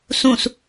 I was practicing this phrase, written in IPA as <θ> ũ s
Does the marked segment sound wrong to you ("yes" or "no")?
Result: yes